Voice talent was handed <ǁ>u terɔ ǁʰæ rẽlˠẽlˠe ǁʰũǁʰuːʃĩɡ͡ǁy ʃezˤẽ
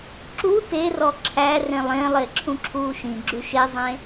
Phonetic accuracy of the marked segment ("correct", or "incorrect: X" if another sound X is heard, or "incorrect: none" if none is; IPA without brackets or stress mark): correct